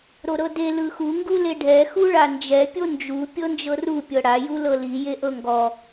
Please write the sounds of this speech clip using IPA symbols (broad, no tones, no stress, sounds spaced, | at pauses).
ɾ o ɾ ɤ d e l ɯ x u ŋ ɡ u l e ɖʱ ɛ x u ɭ a n d͡ʒ ɛ pʲ o n d͡ʒ u pʲ ɤ n d͡ʒ ɤ r u pʲ ɤ ɽ a j u l ɤ l i j e ʔ ɤ ŋ ɡ ɔ